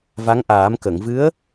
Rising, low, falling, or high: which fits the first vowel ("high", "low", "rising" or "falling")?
rising